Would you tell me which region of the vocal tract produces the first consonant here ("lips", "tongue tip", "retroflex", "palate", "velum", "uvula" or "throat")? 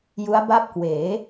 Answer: palate